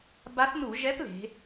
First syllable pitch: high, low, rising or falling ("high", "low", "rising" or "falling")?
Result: rising